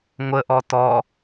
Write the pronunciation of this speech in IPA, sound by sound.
ŋʷəʔɔ tɔ

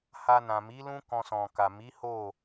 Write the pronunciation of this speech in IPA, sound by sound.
ha˧nã˨mi˨˦lũ˦ kɔ̃˧sɔ̃˨ka˨ mi˨˦ho˦˨

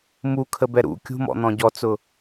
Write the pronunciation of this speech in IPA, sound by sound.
mukʰəbɛ ɾṵ kʲṳmɔ̰n̪ɔ̃ ɟɔt͡sʊ

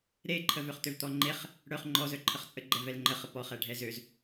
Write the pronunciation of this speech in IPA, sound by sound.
ɾeǃʰəvøχ t̪øvt̪ɔŋ͡ǃeχ | ɽœχ ŋ͡ǃɔzœ ǃʰəχt͡sʼə ɡ͡ǃɛvɛlŋ͡ǃəχə pɔχɛ ɖʱɛzøz

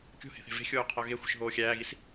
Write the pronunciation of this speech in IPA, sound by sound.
kʲo̤he̤θe̤ ve̤xʲoː qʰɒɣe xʷe̤ʃɦoːxʲæːɣis

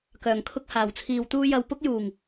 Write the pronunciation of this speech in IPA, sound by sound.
kœː˨˩ŋkʰʊ˥k̚ haː˨˩wt͡sʰiː˧wt̪uː˥ jɐ˧wpʊ˥k̚juː˨˩ŋ

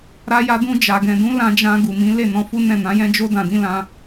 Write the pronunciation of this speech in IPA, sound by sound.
ɾa˧ja˧dũ˧ d͡ʒa˨ɡɛ̃˨dũ˨˦ lã˧d͡ʒã˧ ɡu˨mĩ˨˦le˦˨ nɔ̃˧fu˦ nɛ̃˦˨nã˨˦jɛ̃˦ d͡ʒo˦ dã˧dĩ˦lã˦

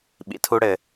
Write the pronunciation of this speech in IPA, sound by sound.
ɓḭ˩tʰu˧ɽɘ˩

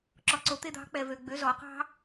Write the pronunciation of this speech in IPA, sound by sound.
ǁɔ˧ǀo˧˥t̪e˥d̪ɑ̤˧˥ k͡pɛ˧vø˧ɡ͡bø˧˥ zɔ˩˧qɑ̤˥

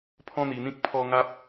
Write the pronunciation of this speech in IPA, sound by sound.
pʰɔ̃˦n̪i˧n̪ĩ˦k̚ pʰɔ˦ŋa˦p̚

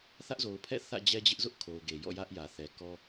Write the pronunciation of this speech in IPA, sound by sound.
θä˦ʔzo˨ʊ̯pʰɛ̰˦˨ θä̰˦˨d͡ʑɛ˦d͡ʑɪ˦ʔzʊ˦ʔ kʰo˨ʊ̯ɡe˨jɔ̰˦˨ jä˦ʔjä˨θɛ˨kɔ˦

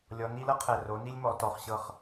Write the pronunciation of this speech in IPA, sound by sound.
lʲɔ˧˥n i˧˥lɤ˥qʰɛ˦˨ ro˧˥ni˥lʲ mɔ˧˥tɔ˧˥χɕɤ˥χ

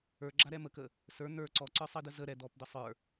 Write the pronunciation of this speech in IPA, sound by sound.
ə˞ɡ͡ǁaɾɛ məkə | sə˞ n̪ə˞ ǀɔǀə˞sˤidə zə ɾɛ d̪ɔpd̪ə sˤə˞

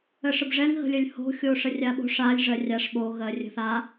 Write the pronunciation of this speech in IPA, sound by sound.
əʂəbʐɛŋ ɣə̤lʲəlʲho̤ xʲoʂərʲaɓo̤ʂ alʲ ʐɜrʲaʂ ɓo ɣɜrʲə̤θa

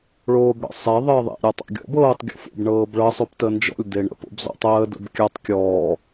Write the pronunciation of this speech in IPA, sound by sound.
ɭoːbɽə̰sˤe ðˤəːðˤḛ ɾʲɔtˤa̰ɡʲɔ̰b ɤːtˤ ɡʲɔ̰fo̰b ɳɤːbɭɤ sˤoptənd͡ʒɔ̰lʲ deɳə̰ po̰bzɔ̰tˤəː də̰bkʲatˤ kʲɔː

